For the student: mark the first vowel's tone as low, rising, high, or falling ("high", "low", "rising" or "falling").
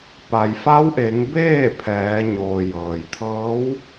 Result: low